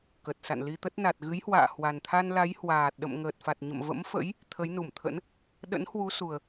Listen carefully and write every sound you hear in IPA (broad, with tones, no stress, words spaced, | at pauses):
kə˨˩t̚sa̰˧˨n li˧t̪ə˦˥t̚ na˨˩t̚ ɣɨ˨˦jhwa̰ː˧˨ hwa˨˩nt̪ʰa˧nla˨˦j hwaː˨˩t̚ɗə̰˧˨m ŋəː˨˩t̚fa˨˩t̚ɲə̰˧˨m və̰˧˥mfə̰˧˥j | t̪ʰə˨˦jnu˧˩mt̪ʰə̰˧˥n | ɗə̰˧˥nhwu˨˦su˨˩ə̯